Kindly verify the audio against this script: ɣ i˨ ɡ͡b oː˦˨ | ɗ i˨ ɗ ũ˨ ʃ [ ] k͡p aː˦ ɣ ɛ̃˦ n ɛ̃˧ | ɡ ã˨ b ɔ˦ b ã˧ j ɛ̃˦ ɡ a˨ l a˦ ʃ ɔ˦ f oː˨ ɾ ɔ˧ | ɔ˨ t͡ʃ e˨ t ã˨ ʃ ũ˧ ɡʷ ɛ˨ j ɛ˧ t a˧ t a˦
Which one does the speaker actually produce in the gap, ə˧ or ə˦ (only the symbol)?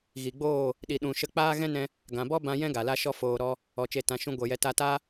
ə˧